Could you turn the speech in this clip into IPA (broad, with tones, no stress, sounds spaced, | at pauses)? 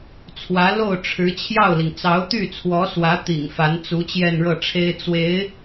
t͡sʰ w ä˧˥ l o˥˩ ʊ̯ ʈ͡ʂʰ ɻ̩˧˥ t͡ɕʰ j ɑ˥˩ ʊ̯ l i˩ ŋ t͡s ɑ˧˥ ʊ̯ t̪ y˥˩ t͡sʰ w ɔ˧˥ s w ä˧˥ t̪ ḭ˨˩ ŋ f a˧˥ n t͡s u˧˥ t͡ɕ j ɛ˥˧ n ɻ ɤ˥˩ ʈ͡ʂʰ e˥ ɪ̯ t͡s w e˧˥ ɪ̯